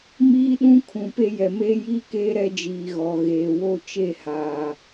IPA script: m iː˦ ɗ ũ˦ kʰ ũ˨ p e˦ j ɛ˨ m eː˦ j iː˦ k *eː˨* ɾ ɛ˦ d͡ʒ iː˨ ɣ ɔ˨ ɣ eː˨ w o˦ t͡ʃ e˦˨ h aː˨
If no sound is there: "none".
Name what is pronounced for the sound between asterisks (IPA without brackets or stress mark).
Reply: eː˦